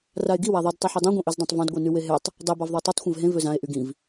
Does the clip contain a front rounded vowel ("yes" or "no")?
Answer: yes